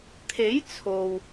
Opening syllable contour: rising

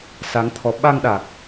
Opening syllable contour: rising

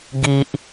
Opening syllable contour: low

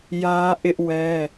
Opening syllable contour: high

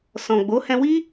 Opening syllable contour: low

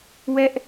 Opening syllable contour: high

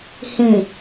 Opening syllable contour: low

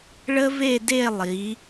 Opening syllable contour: high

